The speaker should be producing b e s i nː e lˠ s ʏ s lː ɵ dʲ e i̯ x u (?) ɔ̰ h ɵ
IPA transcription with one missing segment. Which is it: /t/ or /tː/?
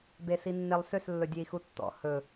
tː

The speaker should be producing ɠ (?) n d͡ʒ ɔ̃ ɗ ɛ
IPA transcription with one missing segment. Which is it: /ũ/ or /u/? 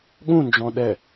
ũ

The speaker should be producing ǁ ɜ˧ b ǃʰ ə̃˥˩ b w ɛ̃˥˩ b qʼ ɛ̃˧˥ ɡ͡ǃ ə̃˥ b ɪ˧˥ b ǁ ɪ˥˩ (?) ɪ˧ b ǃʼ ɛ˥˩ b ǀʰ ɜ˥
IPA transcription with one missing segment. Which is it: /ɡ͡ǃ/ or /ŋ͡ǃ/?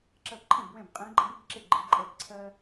ɡ͡ǃ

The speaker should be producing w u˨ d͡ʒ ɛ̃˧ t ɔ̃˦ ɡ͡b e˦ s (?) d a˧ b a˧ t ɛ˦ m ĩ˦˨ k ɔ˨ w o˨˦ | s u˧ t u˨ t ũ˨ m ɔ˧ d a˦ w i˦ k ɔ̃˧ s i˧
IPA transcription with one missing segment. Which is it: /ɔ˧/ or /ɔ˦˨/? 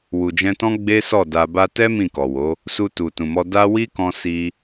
ɔ˦˨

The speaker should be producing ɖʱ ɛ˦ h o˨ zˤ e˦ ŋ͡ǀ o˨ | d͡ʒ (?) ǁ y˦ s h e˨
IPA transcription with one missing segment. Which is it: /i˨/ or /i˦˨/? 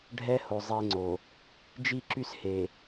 i˦˨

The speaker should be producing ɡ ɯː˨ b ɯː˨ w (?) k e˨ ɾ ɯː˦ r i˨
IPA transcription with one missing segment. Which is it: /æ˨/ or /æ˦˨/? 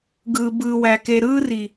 æ˨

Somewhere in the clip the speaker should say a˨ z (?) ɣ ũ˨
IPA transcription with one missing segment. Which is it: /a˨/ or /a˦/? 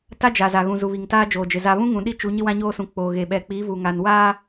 a˨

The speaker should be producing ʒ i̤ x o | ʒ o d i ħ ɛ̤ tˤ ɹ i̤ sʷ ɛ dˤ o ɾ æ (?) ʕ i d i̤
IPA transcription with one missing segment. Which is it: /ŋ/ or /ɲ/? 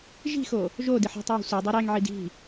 ŋ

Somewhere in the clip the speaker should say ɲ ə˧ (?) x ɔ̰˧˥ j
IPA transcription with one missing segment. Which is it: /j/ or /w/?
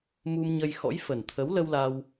j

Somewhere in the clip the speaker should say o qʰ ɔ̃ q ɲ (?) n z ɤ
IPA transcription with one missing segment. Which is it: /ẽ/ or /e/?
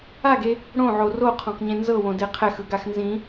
ẽ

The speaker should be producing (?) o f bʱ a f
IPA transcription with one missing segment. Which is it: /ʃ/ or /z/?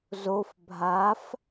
z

